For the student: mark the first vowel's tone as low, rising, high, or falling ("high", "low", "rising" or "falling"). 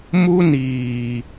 high